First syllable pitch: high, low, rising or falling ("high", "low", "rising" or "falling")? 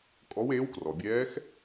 rising